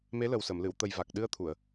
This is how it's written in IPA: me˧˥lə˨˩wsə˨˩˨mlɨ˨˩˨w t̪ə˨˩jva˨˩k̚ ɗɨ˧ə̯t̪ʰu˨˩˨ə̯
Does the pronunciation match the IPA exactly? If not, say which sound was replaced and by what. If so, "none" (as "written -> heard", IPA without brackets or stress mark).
none